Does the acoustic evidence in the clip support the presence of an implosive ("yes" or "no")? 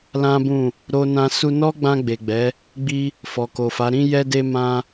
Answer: no